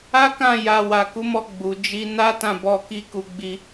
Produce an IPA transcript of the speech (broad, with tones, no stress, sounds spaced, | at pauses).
a˦ k ã˦˨ j a˧ w a˨ k u˨˦ m ɔ˧ ɡ͡b u˨ d͡ʒ i˧ n a˦ t ã˦˨ b ɔ˧ k i˦ k u˧ ɡ͡b i˧